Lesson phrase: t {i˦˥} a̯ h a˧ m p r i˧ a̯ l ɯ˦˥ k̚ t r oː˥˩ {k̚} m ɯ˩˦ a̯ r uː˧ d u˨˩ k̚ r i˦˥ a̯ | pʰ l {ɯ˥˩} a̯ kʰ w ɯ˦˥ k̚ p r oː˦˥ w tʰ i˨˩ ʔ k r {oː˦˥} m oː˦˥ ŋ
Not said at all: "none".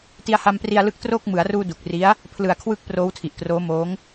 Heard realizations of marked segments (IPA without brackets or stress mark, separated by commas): i˧, k̚, ɯ˨˩, oː˦˥